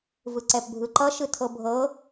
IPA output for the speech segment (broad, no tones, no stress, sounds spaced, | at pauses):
v ɯ ǀ ɛ p bʱ ɯ ǃ ʌ ʃ ɯ tʰ ɤ bʱ ɤ